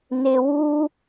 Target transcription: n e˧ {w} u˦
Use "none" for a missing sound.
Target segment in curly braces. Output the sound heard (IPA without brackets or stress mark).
w